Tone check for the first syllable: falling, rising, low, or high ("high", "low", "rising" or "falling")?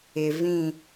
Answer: low